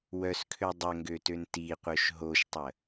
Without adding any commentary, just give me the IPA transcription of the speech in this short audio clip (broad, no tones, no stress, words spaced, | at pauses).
wœskʰø dˤəŋɡøtøn tiqʷœʃ ɦoʃtˤə